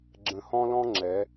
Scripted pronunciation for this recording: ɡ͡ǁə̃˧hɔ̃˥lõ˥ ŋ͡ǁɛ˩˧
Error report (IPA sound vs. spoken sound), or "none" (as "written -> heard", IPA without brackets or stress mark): õ˥ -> ɔ̃˥